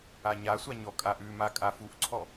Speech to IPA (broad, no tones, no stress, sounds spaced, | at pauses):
a ɲ a sʷ a ɲ ɔ kʼ a ʔ ʉ m a kʼ a f u ʔ ǀʰ ɔ